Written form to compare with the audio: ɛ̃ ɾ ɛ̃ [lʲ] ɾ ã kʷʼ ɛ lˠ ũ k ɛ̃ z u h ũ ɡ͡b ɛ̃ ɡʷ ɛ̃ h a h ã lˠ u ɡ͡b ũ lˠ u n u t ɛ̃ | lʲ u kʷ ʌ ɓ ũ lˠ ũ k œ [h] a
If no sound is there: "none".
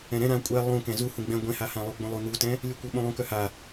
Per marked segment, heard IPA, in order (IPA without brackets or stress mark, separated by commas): none, h